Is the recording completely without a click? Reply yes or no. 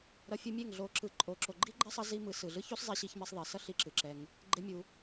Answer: no